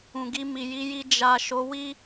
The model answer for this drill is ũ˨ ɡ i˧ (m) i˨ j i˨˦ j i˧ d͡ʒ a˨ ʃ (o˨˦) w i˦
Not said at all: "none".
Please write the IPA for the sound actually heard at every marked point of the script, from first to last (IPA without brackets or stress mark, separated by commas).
m, o˨˦